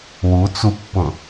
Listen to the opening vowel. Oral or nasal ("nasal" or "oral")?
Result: oral